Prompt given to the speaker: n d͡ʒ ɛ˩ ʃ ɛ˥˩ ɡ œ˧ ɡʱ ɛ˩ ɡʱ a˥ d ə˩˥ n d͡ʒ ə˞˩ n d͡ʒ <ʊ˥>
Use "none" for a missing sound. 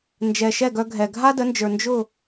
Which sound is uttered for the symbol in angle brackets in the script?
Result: ʊ˥˩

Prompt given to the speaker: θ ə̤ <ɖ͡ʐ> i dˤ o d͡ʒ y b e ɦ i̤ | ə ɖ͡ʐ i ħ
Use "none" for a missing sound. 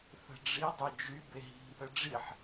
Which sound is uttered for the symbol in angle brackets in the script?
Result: ɖ͡ʐ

